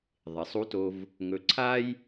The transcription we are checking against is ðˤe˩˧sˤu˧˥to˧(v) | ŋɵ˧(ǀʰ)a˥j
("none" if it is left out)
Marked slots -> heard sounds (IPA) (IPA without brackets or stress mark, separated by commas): v, ǀʰ